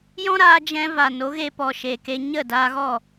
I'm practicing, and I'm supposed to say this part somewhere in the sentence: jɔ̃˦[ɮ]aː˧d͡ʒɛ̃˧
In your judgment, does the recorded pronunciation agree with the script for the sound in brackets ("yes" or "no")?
no